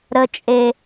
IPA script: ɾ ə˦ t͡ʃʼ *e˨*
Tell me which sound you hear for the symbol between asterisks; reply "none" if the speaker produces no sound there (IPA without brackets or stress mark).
e˦